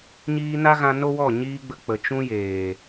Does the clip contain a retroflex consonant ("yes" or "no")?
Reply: no